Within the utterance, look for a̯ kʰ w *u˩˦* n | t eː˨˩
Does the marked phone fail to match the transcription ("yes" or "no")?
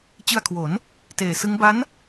yes